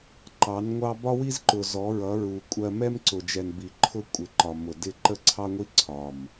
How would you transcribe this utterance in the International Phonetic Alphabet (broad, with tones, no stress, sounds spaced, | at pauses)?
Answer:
ǃ ɑ˨˦ n ŋʷ ɑ˦ b ɒ˦ w i˦ z ǃ ʊ˨ z ɔ˨˦ ɹ ʌ˨˦ ɹ u˨ kʷʼ ɜ˦ m ɛ˦ m ǀ ʊ˨ d͡ʒ ɛ˨ n b i˨ ǃʰ ʊ˦ kʷʼ ɪ˨˦ ǃ ɒ˨ m ʊ˨ d ɪ˦˨ ǃ ə˦ ǀʰ ɑ˦ ŋʷ i˦ ǀʰ ɒ˨ m